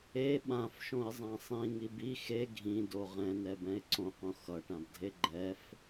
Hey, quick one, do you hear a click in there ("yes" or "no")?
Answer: yes